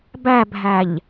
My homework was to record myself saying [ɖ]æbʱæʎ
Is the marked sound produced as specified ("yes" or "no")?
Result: no